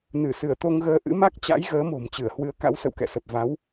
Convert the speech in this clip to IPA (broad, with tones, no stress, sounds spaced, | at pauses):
n ɨ˧˩ s ɨ˧˩ ə̯ t̪ o˧ ŋ ɣ əː˧ ʔ ɨ̰˧˥ m a˦˥ k̚ t͡ɕ a̰˧˥ j ɣ əː˨˦ m o̤˨˩ m t͡ɕ ɨ˧˩ ə̯ h w ɨ˨˦ ə̯ k a̰˧˥ w s ə̰˧˨ w k ɛ̰˧˨ s ə˨˩ p̚ v a˨˦ w